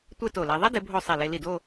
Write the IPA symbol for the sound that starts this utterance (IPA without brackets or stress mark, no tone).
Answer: tʷ